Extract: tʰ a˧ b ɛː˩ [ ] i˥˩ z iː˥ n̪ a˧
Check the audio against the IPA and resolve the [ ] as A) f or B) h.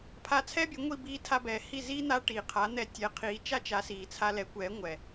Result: B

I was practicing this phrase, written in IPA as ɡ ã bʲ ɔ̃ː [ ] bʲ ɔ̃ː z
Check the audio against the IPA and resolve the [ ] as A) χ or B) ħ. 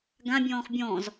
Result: A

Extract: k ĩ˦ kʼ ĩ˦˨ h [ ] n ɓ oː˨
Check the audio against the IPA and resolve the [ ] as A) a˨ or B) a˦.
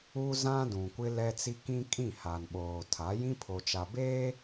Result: A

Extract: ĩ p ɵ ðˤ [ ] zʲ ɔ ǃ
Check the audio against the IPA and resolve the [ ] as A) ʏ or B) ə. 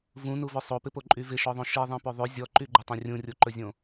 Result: A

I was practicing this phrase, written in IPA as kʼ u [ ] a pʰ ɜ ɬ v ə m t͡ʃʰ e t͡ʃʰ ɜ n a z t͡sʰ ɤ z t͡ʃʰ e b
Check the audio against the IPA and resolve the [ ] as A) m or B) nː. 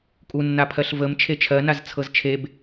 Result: B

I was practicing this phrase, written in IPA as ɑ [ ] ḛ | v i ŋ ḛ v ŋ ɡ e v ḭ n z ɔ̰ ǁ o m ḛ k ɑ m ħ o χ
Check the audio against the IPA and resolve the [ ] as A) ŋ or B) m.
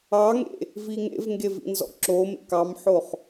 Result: A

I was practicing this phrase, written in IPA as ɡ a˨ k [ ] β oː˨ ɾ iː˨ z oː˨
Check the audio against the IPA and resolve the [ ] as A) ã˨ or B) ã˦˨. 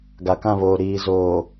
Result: B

